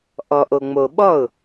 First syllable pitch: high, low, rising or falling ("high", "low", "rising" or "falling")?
low